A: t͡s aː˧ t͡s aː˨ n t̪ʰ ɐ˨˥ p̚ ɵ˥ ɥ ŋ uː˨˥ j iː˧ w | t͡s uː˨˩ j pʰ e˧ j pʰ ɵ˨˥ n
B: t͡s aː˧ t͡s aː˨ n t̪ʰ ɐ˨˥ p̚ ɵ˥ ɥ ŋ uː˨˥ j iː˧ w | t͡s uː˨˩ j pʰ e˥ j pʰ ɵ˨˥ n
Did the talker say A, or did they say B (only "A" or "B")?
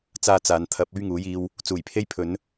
B